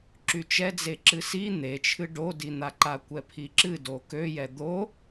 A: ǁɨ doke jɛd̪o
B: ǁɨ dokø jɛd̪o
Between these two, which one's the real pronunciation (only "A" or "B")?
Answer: B